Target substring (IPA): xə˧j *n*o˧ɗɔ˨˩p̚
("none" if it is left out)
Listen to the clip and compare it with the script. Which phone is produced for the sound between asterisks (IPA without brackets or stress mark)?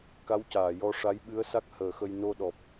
n